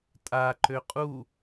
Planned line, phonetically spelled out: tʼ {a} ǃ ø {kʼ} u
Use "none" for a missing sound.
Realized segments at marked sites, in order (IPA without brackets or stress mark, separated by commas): a, qʼ